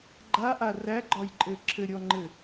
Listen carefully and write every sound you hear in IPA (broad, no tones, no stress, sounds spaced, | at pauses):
ɡ͡ǃ a ʔ a r æ ɡ͡ǃ ɒ j ǃʼ ɘ ǁʰ ɘ ɾʲ ɔ ŋ͡ǃ ɘ